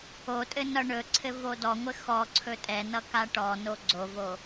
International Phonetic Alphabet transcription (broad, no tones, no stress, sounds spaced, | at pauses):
o tʼ ɘ n ʌ ɳ ɵ ǀʰ ɘ v o d ɔ ŋʷ ɘ x ɔ ǀʰ ɵ tʼ ɛ n ʌ k a ʈ ɔ n o ɡ͡ǀ o v o